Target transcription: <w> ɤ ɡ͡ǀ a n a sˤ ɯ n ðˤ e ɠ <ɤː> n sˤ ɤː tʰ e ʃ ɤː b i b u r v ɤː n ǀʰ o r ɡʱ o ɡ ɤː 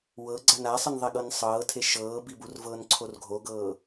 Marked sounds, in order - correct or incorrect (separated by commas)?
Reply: correct, incorrect